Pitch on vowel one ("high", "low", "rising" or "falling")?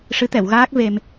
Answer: rising